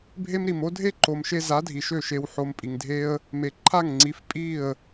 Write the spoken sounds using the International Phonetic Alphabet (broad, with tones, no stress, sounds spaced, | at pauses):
bʱ e˦ m ɾ i˨ m o˦ dʱ e˦ ǃ o˨ m ʃ e˧ z a˨˦ dʱ i˨ ʃ ø˦˨ ʃ e˨ w ħ o˨ m pʼ i˨ ŋ dʱ e˦ ə̯ | m e˨ ǃʰ a˦˨ ŋ ŋ͡ǀ i˨˦ f pʼ i˦˨ ə̯